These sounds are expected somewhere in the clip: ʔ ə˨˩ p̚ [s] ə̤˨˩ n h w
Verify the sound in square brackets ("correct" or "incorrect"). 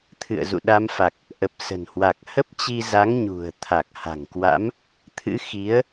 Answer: correct